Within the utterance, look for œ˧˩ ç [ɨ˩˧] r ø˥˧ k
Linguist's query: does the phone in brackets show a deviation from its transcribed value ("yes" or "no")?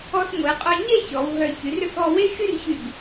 yes